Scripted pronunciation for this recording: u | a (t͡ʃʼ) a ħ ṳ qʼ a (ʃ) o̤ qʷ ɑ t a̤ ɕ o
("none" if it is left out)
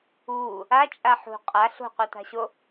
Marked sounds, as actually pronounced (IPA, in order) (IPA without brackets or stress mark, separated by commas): t͡ʃʼ, ɬ